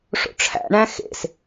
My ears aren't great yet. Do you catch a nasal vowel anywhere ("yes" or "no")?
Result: yes